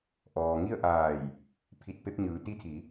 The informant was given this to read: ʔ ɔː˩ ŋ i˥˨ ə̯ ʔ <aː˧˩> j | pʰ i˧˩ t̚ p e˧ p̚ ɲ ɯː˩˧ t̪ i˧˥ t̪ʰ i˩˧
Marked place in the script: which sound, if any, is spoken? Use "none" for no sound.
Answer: aː˧˩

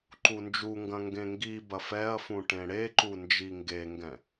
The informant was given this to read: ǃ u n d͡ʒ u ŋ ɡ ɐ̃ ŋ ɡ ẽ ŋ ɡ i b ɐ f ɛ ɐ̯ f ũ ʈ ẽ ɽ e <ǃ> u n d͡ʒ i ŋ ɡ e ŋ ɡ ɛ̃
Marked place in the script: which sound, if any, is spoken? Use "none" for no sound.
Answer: ǃ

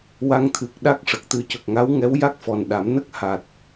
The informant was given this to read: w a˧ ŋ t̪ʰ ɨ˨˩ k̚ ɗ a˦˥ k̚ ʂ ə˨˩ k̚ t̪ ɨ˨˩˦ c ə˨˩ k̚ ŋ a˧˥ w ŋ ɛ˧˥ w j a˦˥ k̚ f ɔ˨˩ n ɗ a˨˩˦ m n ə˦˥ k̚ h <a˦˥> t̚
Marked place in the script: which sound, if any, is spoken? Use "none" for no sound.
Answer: a˨˩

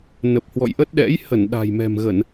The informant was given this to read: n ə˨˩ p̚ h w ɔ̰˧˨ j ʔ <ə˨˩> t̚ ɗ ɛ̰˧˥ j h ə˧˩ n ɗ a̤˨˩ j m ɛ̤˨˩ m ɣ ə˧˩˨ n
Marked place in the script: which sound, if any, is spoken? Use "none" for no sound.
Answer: ə˦˥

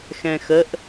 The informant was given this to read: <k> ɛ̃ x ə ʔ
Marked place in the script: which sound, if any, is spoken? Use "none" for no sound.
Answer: x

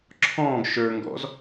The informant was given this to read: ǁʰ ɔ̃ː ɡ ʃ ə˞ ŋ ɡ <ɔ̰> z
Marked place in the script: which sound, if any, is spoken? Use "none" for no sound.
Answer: ɔ̰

